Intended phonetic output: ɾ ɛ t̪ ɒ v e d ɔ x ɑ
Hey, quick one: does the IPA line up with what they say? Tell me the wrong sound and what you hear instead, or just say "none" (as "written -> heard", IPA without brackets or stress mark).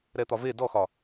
ɑ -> ɒ